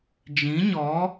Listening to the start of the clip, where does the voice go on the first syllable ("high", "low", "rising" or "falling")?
rising